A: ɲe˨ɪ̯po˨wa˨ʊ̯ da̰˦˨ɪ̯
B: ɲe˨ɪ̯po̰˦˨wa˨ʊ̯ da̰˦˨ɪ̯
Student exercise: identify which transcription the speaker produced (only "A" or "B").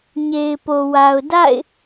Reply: A